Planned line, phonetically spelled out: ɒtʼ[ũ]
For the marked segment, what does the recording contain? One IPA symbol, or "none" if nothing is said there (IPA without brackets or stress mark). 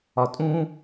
ũ